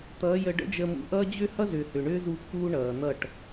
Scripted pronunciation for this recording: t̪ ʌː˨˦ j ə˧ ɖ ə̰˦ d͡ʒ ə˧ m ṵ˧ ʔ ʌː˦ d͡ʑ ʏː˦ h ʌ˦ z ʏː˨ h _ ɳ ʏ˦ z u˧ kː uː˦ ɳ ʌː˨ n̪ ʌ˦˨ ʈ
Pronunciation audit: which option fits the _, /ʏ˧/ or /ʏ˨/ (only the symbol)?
ʏ˨